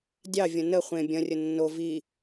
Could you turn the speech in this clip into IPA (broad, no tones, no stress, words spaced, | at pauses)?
dʲɑvʲɐ̃ nə χʷẽ bʲɐ̃rʲə nːo vi